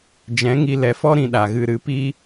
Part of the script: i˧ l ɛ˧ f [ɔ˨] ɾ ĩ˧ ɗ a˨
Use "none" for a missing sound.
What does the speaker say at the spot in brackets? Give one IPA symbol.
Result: ɔ˦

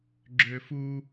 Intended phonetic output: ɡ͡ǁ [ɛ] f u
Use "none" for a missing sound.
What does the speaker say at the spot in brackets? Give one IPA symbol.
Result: ø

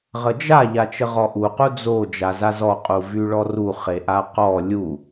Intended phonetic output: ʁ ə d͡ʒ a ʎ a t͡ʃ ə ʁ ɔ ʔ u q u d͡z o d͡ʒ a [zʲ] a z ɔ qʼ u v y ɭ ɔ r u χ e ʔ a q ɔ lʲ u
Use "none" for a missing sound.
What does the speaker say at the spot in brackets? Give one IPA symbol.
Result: z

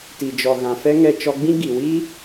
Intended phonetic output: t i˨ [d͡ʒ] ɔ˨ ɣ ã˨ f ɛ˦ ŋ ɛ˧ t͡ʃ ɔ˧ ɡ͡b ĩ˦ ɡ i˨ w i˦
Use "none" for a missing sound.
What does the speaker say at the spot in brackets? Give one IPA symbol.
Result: d͡ʒ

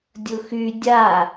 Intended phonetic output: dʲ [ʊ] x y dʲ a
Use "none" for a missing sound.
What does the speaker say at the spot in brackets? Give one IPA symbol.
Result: ʊ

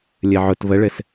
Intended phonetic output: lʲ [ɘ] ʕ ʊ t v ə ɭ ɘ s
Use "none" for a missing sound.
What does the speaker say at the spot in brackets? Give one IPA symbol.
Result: ɘ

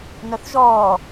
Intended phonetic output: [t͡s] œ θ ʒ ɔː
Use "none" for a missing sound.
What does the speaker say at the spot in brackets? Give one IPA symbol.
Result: n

